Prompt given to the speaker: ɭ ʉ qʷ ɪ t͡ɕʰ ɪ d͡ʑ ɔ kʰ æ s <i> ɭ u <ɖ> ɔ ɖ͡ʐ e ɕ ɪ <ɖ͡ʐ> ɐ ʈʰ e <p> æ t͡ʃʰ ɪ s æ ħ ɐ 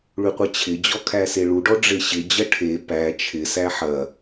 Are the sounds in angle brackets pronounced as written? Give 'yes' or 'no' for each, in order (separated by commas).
no, yes, no, yes